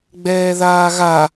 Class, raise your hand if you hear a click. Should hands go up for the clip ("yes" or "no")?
no